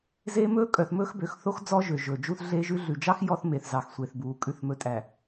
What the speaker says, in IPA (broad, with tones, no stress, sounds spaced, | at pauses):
z eː˦ m ɵː˦ kʼ œ˨ θ m ɵː˦ x b ø˨ x θ o˦ x d͡z ɔ˦ ʒ ø˨ ʒ ɵː˨ d͡ʒ u˦ θ ɮ eː˦ ʒ ʉ˦ ɮ ʉ˨ d͡ʒ ɑ˦ x j ɔ˦ θ m e˨ θ z ɑ˨ x sʷ e˨ θ b uː˨ kʼ ʉ˨ θ m ɵ˨ tʼ æ˨